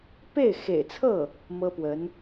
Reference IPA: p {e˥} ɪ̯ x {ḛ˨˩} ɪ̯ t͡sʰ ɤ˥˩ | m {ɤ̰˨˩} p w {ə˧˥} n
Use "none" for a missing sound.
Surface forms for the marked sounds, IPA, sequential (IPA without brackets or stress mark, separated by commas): e˥˩, ḛ˨˩, ɤ˥, ə˧˥